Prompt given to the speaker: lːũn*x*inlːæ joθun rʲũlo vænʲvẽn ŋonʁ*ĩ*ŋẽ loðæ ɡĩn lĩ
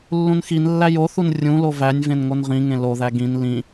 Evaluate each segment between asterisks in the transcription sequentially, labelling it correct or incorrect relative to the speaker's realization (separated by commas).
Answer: correct, correct